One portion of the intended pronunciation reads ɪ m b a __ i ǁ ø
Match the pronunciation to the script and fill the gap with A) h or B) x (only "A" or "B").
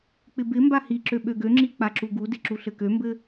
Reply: A